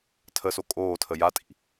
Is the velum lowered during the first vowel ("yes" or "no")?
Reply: no